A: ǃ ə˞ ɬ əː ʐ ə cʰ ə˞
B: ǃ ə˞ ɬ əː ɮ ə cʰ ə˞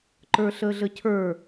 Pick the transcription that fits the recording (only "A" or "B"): B